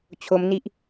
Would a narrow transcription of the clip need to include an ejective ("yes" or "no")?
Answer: no